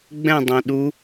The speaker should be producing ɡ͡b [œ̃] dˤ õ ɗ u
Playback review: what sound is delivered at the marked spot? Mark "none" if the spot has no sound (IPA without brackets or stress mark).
ɛ̃